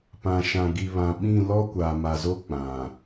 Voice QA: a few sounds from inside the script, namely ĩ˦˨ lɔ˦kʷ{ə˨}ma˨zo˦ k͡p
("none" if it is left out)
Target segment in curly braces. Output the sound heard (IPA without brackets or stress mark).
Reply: a˨